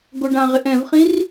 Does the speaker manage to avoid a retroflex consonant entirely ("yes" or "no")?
no